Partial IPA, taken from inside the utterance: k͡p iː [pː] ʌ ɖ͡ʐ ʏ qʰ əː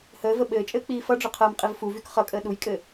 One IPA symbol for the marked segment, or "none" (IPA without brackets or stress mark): f